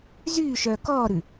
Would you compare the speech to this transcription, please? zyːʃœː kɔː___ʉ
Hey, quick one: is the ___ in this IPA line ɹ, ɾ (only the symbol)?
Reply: ɾ